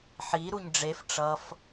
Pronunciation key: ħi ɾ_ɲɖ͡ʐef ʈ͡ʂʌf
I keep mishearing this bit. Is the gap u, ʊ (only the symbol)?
u